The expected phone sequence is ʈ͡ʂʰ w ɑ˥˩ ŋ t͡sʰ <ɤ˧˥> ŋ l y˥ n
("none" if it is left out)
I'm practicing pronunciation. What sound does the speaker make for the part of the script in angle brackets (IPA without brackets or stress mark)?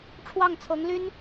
ɤ˧˥